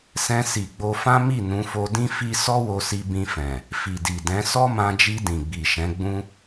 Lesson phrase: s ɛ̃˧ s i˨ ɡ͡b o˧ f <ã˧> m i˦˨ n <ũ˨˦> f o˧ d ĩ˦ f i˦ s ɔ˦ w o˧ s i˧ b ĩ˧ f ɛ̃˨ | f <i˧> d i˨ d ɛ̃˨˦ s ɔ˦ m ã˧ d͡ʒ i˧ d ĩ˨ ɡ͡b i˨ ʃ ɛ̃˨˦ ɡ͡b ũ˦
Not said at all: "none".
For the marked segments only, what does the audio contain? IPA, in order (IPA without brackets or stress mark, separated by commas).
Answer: ã˦, ũ˨˦, i˨